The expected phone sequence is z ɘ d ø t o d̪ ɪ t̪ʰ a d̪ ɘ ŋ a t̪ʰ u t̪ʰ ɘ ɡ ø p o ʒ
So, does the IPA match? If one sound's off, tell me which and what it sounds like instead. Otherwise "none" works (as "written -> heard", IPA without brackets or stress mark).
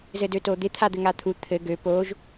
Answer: none